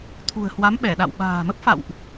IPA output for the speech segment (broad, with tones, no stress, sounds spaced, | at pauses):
t̪ʰ ṳ˨˩ ə̯ h w a˨˦ m ɓ ɛ˧˩ ɗ a̰˧˨ w ɓ a̤ː˨˩ m ə˦˥ p̚ f a̰˧˨ w ʔ